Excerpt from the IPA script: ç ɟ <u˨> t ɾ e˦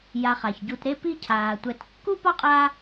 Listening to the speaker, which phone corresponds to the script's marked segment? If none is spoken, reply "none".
u˨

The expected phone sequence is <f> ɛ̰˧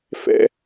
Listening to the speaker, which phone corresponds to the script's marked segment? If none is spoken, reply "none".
f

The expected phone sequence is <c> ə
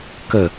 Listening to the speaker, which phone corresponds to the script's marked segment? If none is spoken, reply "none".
k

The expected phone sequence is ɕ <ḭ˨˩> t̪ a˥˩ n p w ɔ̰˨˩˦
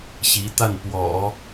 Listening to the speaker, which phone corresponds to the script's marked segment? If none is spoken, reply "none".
i˧˥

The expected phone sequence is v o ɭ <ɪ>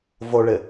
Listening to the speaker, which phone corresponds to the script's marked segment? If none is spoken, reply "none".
ɪ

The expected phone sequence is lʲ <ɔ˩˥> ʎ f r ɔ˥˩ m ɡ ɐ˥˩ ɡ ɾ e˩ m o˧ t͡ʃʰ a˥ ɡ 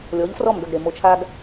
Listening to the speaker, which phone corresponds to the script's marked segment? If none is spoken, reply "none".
ɔ˩˥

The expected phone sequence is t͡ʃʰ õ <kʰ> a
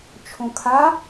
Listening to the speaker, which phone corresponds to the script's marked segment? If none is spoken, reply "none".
kʰ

